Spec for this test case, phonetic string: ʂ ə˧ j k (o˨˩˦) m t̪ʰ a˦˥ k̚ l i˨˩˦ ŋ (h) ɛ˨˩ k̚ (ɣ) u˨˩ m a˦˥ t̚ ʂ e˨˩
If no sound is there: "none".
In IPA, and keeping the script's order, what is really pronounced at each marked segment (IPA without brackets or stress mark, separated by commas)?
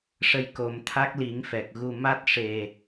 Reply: o˨˩˦, f, ɣ